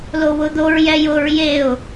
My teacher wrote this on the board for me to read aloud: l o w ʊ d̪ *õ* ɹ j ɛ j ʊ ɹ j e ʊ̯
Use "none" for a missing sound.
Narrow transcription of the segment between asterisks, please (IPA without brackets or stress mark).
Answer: o